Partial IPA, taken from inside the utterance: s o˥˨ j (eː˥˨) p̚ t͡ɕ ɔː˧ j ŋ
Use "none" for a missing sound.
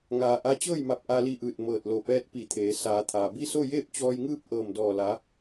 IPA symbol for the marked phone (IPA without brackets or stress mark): eː˥˨